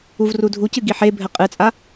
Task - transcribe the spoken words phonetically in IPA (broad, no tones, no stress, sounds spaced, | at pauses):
u v r u dʱ u c ɨ ɡ i ħ e bʱ ɘ qʼ ɨ t͡sʼ a